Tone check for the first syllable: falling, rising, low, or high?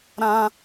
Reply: high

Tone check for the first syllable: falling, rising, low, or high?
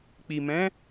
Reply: low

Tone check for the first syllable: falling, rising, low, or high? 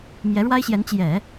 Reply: rising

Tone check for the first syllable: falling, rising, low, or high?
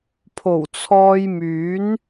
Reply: low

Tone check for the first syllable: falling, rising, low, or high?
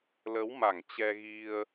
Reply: rising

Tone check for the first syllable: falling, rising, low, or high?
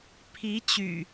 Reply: rising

